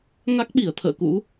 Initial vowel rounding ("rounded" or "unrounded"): unrounded